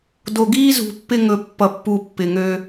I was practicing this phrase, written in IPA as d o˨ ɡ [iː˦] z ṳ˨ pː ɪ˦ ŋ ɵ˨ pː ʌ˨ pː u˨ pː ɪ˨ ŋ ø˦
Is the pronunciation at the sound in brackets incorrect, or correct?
correct